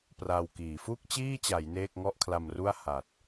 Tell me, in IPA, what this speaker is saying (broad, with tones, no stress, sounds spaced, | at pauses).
p r a˧ w k iː˩˦ f u˥˩ k̚ t͡ɕ iː˥˩ t͡ɕ a˩˦ j n eː˥˩ k̚ ŋ ɔ˥˩ ʔ kʰ l a˧ m r u˥˩ a̯ h a˨˩ t̚